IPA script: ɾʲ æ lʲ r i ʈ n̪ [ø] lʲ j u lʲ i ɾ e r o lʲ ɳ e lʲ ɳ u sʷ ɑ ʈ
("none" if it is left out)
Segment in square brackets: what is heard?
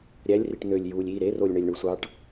ø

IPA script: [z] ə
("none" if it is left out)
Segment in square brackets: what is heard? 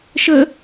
ʃ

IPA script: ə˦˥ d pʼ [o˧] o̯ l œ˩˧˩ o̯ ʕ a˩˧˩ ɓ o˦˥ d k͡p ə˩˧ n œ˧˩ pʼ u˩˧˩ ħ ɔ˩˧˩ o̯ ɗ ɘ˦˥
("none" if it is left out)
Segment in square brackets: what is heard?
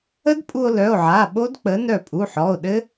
u˧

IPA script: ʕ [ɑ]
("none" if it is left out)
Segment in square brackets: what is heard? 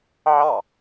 ɑ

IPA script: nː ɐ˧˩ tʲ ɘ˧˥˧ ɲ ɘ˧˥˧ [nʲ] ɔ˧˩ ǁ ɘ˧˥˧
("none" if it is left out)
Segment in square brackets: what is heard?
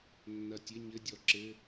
dʲ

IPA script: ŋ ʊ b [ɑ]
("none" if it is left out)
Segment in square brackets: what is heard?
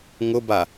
a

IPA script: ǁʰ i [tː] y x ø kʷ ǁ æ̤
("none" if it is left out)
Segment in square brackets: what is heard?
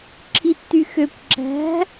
tː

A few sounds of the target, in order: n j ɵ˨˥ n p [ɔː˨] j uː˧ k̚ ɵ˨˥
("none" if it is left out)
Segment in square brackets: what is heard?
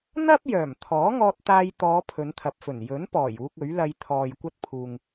ɔː˨˩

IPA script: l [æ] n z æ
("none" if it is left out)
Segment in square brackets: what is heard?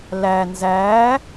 æ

